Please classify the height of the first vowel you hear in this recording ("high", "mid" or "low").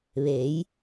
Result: mid